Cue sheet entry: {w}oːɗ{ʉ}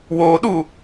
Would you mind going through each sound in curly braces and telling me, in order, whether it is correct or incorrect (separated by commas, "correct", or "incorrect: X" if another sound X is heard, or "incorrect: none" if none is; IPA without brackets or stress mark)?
correct, incorrect: u